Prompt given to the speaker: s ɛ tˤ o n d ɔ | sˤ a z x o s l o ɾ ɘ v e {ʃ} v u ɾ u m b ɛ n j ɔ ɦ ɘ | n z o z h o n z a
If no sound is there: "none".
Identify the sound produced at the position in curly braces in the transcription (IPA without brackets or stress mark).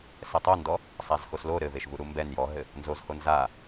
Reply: ʃ